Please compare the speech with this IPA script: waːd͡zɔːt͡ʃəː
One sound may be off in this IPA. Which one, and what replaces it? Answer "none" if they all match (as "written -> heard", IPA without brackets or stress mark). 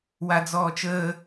aː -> a